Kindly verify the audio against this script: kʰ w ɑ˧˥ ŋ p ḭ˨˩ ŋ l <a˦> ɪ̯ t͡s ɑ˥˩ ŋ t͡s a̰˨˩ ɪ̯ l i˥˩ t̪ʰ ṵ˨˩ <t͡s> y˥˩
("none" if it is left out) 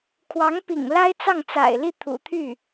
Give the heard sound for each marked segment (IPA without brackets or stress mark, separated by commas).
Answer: a˥, t̪ʰ